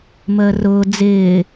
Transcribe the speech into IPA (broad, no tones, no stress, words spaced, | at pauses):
məːrʊː d͡zɪː